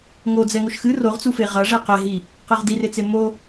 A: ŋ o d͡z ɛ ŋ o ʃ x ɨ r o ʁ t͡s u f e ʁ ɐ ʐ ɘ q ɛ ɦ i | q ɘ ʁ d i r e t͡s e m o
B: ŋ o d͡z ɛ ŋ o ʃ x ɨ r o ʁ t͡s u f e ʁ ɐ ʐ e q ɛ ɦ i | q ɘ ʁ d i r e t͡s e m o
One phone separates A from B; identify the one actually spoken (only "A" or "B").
B